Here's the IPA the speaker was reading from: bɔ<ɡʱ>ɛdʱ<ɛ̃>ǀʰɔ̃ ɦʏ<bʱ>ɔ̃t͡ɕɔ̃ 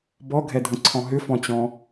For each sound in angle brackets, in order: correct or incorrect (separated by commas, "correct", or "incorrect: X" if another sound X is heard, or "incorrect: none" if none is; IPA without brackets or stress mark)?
correct, incorrect: ə̃, incorrect: f